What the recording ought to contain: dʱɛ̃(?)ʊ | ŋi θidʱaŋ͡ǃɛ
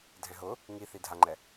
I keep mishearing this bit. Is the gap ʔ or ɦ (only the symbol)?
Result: ɦ